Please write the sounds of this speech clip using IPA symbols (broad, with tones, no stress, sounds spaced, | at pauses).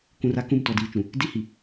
k ũ˨ r a˦ k ũ˦˨ m t ɔ˨ d iː˨ t͡ʃ ũ˨ | d i˦ h i˨